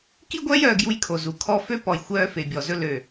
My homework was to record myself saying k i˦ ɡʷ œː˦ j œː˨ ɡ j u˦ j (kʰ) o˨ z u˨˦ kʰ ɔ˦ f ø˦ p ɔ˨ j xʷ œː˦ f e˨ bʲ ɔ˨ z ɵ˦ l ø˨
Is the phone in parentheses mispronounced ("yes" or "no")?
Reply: no